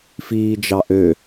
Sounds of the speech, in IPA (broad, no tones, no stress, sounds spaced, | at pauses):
f iː d͡ʒ ɑ ʔ ø